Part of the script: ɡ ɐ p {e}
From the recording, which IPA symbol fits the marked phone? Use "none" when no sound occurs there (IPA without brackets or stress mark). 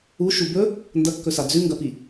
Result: i